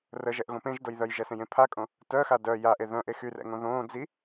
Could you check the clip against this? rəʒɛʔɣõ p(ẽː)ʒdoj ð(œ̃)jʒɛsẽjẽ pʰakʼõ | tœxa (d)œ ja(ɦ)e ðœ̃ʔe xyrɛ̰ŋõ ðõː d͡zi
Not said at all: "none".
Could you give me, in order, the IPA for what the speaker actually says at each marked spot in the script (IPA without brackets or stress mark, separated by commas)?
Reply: ẽ, œ, d, ʔ